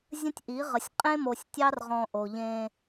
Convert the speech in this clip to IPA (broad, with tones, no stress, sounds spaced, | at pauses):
zʲ ə̃˦ tʲ ʔ i˨˦ ʁ ə˨ sʲ qʼ ẽ˦ m o˨ sʲ tʲ ɑ˦ r ʁ ɔ̃˨ ʔ o˨ ʎ ẽ˦